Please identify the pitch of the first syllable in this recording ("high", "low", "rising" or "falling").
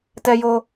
high